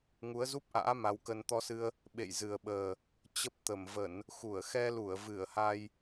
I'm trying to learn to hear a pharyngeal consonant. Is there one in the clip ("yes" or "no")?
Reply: no